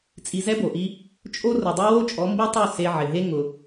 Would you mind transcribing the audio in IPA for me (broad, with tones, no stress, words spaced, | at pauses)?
t͡sʼi˧zɛ˦bo˨ʔi˦ | t͡ʃʼo˦ rʊ˨dˤe˦wo˦t͡ʃʼɔ˨˦ mbi˦tˤu˦˨ se˧ ʕɪ˨ ɦe˦ ŋʊ˧